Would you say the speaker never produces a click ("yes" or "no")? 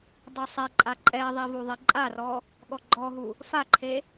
no